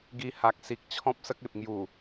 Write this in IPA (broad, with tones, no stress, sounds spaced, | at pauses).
ɡ i˧ h a˨ k̚ s i˨ k̚ t͡ɕʰ ɔ̃˦ p̚ s ə˦ k̚ e˨ p̚ ŋ j u˨˩